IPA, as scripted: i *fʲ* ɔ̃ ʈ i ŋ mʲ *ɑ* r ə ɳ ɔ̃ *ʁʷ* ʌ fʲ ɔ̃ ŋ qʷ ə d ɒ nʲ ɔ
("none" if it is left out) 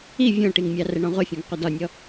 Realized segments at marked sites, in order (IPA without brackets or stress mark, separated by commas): vʲ, ɑ, ʁʷ